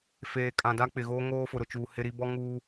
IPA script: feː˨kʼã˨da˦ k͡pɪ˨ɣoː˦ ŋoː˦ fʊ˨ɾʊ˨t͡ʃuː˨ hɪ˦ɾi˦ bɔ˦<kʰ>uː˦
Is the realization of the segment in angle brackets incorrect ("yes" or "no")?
yes